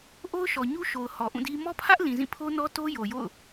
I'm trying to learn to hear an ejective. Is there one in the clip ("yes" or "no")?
no